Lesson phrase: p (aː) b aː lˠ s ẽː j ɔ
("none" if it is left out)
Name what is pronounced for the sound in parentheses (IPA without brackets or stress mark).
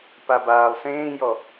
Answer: a